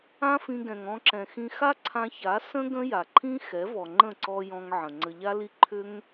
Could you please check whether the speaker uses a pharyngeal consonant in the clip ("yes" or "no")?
yes